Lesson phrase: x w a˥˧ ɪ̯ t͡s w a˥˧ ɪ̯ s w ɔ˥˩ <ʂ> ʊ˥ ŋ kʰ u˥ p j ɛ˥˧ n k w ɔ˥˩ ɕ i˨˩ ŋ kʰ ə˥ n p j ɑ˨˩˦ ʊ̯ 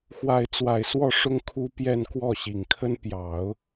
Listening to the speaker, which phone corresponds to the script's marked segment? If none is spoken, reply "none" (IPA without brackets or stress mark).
ʂ